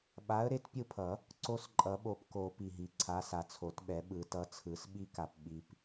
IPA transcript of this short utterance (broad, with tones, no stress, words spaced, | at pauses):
ɓa˨˥ə̯ɾe˨˥tpʲɯ˦˨pʰʌ˨˩˦ | ǀo˦sǃʼʌ˨˩˦ɓo˨pko˨˩˦ pi˨ɦi˨ǀʰa˨˥ sa˨t͡sʰo˨˩˦tɓɛ˨˩˦ ɓɯ˨˩˦tʌ˨˥t͡sʰɯ˨˩˦s ɓi˦ka˨p ɓi˨p